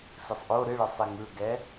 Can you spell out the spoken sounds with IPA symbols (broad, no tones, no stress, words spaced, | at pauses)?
sɨsˤʔo ɾɨɭɯsˤi ŋɯɡɛ